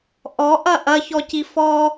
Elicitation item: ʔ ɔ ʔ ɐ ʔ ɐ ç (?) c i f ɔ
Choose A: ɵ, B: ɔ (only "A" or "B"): B